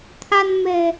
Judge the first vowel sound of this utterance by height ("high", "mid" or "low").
low